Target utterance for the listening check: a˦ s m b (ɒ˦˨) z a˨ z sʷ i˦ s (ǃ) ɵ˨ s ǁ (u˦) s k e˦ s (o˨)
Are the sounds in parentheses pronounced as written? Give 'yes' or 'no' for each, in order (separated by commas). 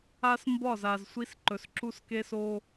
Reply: yes, yes, yes, no